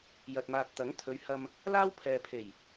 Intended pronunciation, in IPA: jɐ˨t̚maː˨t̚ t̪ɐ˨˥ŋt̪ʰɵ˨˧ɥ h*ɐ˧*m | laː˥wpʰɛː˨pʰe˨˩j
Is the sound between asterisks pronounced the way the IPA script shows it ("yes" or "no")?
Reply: yes